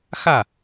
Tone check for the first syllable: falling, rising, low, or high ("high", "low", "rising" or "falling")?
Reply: falling